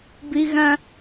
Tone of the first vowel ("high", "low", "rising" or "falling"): high